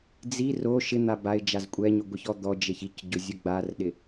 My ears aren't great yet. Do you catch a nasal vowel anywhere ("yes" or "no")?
no